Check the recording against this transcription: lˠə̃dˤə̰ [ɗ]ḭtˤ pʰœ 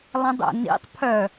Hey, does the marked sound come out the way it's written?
no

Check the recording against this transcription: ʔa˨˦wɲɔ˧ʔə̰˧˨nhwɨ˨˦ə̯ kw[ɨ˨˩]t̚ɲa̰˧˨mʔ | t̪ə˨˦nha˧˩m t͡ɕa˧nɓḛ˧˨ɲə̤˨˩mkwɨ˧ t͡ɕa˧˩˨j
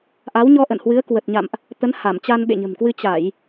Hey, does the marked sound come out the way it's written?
no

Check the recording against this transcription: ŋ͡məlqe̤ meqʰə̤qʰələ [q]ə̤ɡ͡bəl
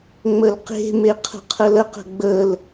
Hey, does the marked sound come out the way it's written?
yes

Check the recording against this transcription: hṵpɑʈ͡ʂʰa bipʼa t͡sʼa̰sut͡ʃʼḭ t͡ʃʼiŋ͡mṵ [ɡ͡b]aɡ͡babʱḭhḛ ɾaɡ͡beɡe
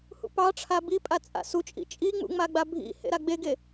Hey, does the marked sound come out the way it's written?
no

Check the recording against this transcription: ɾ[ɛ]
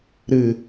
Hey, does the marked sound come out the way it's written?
no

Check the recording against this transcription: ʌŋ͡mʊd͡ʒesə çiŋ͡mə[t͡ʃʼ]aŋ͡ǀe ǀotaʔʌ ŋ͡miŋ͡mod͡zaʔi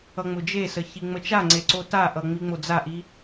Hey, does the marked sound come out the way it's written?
no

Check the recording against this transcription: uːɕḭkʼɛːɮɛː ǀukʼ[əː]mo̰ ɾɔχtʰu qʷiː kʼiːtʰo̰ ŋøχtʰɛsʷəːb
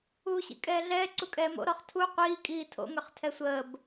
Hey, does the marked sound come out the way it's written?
no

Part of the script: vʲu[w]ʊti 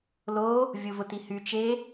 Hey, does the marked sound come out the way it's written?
no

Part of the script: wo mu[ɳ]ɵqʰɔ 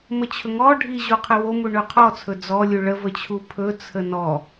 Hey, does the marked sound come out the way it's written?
yes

